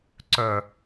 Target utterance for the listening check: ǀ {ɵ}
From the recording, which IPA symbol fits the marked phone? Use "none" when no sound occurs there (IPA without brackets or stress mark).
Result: œ